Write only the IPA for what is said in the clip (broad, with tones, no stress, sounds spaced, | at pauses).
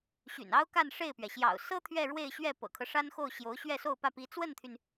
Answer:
ɕ y̰˨˩ n ɑ˥ ʊ̯ k a˥˧ n ʂ e˥˩ ɪ̯ p ɥ ɛ˩ ɕ j ɑ̰˨˩ ʊ̯ s ɤ˥ t̪ʰ ɥ ɛ˥˧ ɻ w e˥˧ ɪ̯ ɕ ɥ ɛ˥˩ p ɤ̰˨˩ kʰ ɤ˦ ʂ a˥ n x o˥˩ ʊ̯ ɕ j o˧˥ ʊ̯ ɕ ɥ ɛ˥˧ s o˥˧ ʊ̯ p ä˥˩ p i˧˥ t͡s w ə˥˩ n t̪ʰ y˩ n